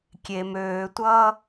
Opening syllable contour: low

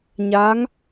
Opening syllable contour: rising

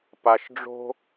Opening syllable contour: low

